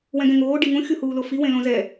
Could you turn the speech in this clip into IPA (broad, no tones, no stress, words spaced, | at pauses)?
wɛ̃ɡɛ̃ŋoː ɖiŋũ xʲuhuːlofi wẽlõzɛ